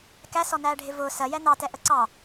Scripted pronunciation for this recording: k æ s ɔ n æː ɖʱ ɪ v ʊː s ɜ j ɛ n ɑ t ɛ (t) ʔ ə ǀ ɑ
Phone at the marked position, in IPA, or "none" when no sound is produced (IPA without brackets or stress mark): none